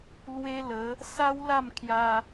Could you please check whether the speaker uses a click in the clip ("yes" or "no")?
no